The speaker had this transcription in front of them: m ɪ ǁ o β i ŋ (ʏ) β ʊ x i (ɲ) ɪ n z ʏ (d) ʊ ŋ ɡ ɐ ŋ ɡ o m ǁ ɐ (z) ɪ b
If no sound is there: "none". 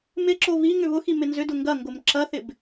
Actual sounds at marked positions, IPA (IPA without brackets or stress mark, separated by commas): ʏ, m, d, θ